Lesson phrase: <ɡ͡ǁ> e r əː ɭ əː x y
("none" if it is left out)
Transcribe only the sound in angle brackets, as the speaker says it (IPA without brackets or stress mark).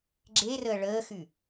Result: ɡ͡ǁ